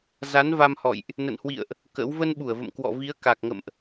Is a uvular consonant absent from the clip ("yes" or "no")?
yes